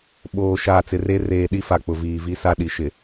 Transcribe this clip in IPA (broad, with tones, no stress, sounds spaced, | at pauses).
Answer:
ɓ oː˨ ʃ aː˨ t͡s ɪ˨ r e˦ r eː˨ ɗ i˦ f a˨ k͡p ʊ˨ v iː˨ v i˦ s a˦ ɗ i˨ ʃ ɪ˨